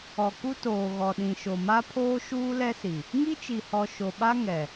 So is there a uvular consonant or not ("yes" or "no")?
no